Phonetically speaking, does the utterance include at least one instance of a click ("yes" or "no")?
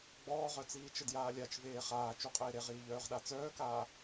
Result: no